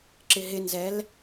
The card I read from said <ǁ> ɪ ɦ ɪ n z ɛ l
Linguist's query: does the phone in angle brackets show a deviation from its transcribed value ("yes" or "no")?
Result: no